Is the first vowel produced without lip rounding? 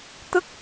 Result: yes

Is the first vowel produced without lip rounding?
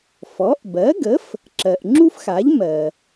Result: no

